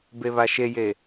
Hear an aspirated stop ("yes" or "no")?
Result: no